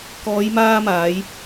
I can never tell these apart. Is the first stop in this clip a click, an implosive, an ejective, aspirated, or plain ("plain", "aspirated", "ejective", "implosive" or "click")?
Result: plain